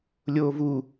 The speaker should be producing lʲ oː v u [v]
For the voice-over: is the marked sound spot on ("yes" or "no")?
no